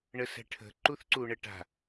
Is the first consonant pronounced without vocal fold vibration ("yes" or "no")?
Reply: no